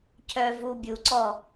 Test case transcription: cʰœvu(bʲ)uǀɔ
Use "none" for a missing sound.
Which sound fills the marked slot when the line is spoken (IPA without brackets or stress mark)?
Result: bʲ